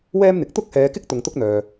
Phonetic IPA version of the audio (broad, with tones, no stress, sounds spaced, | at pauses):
w ɛː˥ m n̪ ɪ˨˥ k̚ t̪ ʊ˥ k̚ h ɛː˨˧ k ɪ˥ k̚ t̪ ʊ˨ ŋ t̪ ʊ˥ k̚ n̪ œː˨